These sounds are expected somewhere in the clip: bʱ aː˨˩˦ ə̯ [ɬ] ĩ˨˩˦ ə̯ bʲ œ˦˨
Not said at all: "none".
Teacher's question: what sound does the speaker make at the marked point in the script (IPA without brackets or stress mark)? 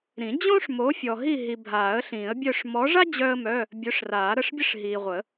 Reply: ɬ